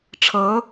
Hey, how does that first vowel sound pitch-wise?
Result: rising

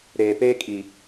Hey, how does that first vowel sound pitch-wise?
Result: low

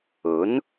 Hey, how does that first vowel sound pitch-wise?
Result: rising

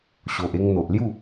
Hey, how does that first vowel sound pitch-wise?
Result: low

